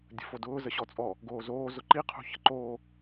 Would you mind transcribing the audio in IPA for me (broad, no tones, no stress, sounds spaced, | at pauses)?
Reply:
dʲ ə̤ f o d ʊː z ə ɕ ɔ t͡sʼ ɔ | ɡ oː z oː z ʊ ǃ i qʰ ṳ ç ə̤ ǃ oː